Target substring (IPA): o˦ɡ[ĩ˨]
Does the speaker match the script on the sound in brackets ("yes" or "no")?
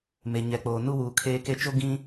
no